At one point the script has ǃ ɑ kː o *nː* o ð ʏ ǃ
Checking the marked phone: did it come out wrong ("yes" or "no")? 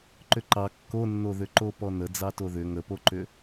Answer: no